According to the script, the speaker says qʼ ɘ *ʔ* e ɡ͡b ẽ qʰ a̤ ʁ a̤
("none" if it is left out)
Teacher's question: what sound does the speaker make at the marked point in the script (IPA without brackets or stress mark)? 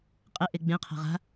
ʔ